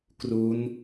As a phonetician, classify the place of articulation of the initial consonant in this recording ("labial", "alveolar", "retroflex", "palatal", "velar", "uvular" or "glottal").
velar